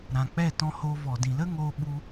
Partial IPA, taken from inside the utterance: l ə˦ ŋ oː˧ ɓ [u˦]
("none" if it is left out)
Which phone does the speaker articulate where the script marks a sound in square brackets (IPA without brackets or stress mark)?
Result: u˧